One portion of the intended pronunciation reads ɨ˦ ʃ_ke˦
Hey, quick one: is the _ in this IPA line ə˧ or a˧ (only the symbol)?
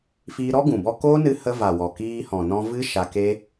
a˧